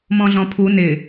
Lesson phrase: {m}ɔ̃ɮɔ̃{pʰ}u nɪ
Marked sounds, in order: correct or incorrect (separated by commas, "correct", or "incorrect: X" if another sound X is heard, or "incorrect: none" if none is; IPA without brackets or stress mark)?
correct, correct